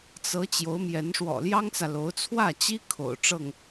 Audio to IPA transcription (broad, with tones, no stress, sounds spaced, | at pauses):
t͡s ɤ˧˥ t͡ɕ j o˧˥ ʊ̯ m j ɛ˧˥ n ʂ w ɔ̰˨˩ l j ɑ˥ ŋ t͡s ä˨ l o˧˥ ʊ̯ t͡sʰ w ä˥˩ t͡ɕ i˥ kʰ o̰˨˩ ʊ̯ ʈ͡ʂ ɤ˥˩ ŋ